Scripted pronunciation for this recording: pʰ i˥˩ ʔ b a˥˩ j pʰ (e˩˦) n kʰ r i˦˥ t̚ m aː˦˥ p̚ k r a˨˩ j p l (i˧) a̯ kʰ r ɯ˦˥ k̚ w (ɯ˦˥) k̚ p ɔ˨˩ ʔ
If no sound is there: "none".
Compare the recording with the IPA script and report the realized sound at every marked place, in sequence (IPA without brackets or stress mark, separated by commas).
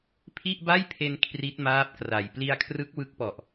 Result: e˧, i˧, ɯ˦˥